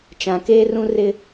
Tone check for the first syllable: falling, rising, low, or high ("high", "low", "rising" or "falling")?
low